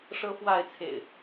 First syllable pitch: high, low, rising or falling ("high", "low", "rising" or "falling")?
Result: high